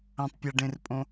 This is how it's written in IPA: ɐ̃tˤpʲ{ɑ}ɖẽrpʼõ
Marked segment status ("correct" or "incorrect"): incorrect